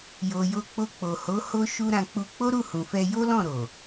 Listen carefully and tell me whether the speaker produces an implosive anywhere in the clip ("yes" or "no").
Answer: no